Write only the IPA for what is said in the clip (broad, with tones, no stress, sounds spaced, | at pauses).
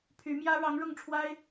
pʰ y˧˥ m j ä˥ ɻ ɑ˧˥ ŋ ɻ ʊ˥˩ ŋ ʈ͡ʂʰ w a˥ ɪ̯